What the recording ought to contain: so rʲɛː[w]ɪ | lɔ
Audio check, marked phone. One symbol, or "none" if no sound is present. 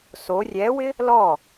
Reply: w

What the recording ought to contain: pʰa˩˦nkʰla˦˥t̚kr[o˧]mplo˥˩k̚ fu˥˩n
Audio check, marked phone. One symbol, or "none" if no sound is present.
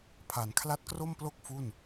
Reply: o˥˩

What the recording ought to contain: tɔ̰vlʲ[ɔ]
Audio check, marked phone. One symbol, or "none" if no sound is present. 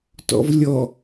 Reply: ɔ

